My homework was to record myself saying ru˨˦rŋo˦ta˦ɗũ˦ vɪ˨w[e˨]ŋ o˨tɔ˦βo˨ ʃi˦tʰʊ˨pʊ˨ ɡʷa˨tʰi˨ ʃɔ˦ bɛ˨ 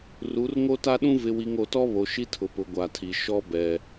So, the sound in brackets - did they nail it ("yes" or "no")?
no